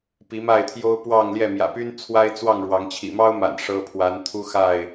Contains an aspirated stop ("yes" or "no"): yes